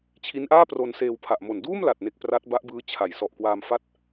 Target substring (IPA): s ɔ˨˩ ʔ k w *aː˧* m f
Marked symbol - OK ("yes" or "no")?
yes